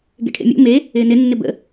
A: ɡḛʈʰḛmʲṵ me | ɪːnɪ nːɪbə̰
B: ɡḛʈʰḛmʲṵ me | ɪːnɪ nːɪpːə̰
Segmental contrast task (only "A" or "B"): A